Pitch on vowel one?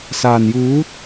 low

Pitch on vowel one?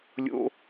high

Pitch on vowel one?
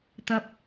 low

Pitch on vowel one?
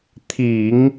low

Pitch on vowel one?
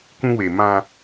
high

